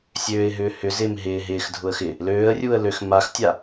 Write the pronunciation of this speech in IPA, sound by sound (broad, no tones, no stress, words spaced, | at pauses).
sʲøːɪ̯ ɦʏːhʏ zɪːmɦɪː ɦɪːx dʱʊə̯xɪ | løːə̯rʲuːə̯ løx maxtʲa